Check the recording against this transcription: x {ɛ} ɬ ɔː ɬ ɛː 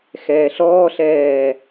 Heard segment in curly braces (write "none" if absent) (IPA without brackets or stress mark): ɛː